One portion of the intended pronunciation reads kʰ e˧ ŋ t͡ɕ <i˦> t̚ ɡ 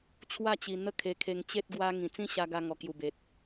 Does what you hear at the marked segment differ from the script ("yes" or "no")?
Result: yes